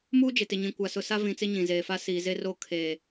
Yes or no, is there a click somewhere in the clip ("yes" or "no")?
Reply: no